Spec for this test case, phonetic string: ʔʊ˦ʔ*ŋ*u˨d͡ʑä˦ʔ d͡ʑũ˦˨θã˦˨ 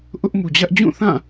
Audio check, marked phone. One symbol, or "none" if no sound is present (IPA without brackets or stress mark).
m